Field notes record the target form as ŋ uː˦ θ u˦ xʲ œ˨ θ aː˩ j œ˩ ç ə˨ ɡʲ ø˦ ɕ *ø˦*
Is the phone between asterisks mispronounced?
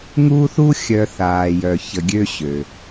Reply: yes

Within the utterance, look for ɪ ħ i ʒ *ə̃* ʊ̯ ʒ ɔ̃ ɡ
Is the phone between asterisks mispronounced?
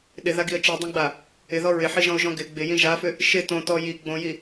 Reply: yes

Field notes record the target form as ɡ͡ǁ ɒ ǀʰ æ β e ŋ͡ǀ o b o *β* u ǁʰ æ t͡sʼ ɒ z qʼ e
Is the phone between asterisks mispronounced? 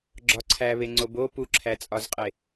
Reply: yes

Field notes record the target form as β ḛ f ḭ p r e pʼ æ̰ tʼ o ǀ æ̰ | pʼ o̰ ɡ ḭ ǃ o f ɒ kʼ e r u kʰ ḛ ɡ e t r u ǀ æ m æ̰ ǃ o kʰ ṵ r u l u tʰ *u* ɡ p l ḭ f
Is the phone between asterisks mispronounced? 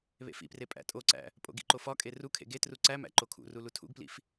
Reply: yes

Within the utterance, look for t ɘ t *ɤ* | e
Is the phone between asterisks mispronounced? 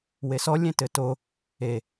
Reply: yes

